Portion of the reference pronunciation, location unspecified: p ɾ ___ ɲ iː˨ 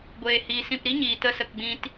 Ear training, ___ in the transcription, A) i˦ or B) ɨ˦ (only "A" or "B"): A